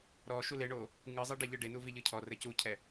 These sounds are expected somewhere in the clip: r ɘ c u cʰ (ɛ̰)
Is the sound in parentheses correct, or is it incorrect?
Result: incorrect